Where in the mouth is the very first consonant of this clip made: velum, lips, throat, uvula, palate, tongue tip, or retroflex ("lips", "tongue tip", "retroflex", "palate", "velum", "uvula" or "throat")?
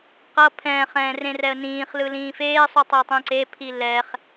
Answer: uvula